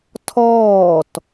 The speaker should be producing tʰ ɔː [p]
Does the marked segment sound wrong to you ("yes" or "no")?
yes